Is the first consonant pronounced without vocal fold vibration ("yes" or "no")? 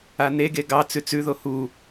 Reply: no